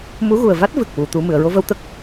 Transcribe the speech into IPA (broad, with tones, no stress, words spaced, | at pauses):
mu˧˥ɣu˨˩ə̯va˦˥t̚ vɨ˨˩k̚wu˨˩˨ t̪u˨˩˦ mɨ˨˩˨ə̯ɹo˧və˧w t̪ə˦˥k̚